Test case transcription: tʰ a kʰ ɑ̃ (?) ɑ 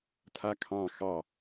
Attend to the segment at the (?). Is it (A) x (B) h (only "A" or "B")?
A